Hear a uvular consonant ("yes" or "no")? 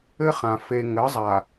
yes